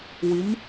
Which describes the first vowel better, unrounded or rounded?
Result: unrounded